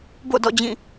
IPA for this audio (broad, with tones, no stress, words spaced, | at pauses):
bo̰˦˨dɔ̰˦˨d͡ʑĩ˦˨